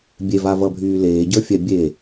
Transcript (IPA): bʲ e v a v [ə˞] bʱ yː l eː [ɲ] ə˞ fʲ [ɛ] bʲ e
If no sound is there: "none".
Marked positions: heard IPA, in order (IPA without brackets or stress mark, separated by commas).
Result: ʌ, ɟ, ɛ